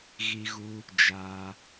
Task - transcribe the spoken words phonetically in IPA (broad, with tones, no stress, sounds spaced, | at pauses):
ɣ i˧ ɣ u˧ | d͡ʒ aː˧